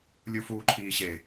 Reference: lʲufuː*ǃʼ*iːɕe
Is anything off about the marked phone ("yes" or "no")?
yes